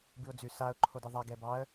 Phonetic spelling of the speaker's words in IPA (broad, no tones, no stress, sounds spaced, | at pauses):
b ɨ ʊ̯ d͡z ʉ s a ʊ̯ ǃʰ o d ɨ ðˤ a ɡ ɛ b ɑ ə̯